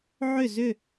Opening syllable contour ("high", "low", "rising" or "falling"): falling